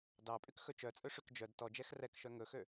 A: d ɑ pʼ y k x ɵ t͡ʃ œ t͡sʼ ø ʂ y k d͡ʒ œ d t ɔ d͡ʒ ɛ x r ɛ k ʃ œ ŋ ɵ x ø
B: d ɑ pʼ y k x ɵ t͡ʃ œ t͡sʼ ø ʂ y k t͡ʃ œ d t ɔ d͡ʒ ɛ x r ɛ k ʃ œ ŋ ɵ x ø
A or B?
A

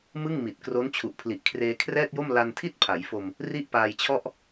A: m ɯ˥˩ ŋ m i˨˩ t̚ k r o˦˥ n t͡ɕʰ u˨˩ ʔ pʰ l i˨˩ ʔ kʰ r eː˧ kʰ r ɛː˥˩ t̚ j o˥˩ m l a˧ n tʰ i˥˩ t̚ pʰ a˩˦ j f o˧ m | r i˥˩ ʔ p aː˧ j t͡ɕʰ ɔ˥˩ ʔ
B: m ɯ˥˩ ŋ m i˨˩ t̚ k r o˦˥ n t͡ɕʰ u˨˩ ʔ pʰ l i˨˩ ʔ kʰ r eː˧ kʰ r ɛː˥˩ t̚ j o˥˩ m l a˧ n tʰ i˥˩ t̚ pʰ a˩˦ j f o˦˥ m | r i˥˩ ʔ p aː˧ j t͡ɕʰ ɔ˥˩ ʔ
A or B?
A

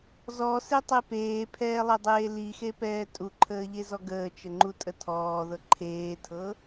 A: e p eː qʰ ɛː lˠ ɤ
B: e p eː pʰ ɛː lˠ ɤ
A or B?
B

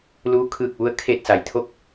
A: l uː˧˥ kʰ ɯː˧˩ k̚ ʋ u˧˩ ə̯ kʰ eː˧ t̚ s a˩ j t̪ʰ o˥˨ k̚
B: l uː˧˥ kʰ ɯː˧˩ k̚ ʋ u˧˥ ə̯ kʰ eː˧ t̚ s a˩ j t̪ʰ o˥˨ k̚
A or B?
B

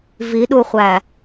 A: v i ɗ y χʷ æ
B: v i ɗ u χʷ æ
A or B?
B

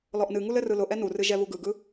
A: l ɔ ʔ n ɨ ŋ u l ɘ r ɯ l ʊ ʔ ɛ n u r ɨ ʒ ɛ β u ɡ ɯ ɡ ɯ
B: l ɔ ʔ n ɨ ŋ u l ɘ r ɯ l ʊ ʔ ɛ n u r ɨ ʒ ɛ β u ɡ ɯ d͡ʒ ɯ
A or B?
A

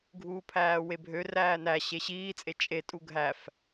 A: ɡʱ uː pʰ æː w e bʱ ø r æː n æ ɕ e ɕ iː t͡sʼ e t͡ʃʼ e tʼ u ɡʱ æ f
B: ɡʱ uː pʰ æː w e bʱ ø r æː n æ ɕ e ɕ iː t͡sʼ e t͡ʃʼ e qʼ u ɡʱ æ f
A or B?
A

